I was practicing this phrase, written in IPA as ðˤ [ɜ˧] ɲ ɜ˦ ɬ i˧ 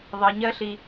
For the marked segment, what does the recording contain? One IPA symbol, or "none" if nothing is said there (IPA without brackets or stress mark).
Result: ɜ˧